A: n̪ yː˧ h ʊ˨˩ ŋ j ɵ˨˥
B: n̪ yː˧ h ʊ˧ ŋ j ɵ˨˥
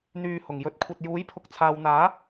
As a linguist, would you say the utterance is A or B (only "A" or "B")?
A